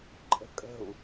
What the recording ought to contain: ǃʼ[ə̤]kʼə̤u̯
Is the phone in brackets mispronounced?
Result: no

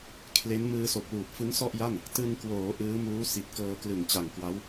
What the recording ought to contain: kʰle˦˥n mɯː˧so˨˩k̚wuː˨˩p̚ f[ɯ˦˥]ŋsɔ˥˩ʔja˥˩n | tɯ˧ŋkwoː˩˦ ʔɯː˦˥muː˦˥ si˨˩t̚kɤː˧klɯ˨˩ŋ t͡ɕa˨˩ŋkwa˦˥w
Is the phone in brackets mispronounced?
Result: no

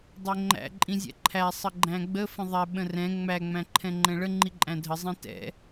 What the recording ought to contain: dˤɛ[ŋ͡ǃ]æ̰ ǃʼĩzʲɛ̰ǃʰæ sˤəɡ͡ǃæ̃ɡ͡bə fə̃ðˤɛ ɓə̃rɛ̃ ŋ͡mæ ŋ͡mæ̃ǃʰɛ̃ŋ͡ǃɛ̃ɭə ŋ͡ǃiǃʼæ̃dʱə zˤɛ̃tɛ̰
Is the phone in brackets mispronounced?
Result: no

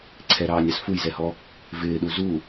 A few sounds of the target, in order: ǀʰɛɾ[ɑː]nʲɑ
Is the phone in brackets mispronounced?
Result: no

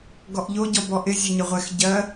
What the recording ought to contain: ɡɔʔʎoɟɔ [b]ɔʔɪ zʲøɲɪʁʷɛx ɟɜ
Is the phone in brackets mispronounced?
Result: no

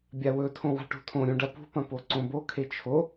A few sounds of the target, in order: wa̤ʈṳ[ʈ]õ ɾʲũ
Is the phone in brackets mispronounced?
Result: yes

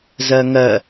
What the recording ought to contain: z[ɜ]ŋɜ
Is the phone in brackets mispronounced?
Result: no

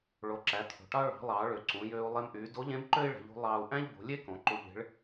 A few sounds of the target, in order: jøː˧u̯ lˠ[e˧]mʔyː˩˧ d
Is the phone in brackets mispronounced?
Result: no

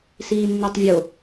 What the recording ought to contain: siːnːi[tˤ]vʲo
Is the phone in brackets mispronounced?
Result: no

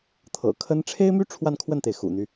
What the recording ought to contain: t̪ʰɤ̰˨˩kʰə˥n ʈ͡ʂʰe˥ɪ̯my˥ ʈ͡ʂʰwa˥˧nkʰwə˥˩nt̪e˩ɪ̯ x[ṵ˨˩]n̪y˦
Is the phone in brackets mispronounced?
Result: no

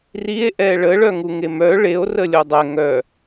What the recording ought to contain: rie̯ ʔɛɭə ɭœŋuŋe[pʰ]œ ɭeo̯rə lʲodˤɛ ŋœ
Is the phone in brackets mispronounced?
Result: yes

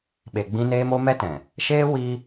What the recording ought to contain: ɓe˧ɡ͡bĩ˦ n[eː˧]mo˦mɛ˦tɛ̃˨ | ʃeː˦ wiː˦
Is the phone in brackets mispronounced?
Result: yes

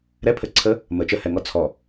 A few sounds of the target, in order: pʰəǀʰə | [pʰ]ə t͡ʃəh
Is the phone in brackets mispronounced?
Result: yes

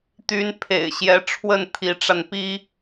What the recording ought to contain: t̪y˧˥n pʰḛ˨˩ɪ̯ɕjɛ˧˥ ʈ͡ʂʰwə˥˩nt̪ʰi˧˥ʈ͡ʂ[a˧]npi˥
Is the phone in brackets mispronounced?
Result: no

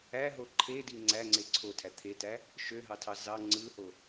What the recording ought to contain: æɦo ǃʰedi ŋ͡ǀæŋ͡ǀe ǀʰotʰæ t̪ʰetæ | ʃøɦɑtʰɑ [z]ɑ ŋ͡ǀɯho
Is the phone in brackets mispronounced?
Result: no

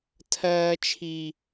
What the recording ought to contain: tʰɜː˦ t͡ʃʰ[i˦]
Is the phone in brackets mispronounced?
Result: no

